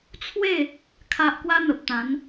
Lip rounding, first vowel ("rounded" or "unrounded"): unrounded